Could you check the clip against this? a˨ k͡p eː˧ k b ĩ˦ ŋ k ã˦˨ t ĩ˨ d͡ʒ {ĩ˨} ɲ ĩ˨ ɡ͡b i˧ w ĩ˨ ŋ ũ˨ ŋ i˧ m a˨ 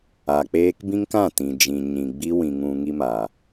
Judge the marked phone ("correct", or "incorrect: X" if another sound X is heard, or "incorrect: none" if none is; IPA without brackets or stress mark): correct